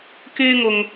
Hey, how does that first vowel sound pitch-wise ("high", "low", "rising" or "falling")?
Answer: high